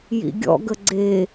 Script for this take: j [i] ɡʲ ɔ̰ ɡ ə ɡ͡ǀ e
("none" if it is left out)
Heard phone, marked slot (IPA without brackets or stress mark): ḭ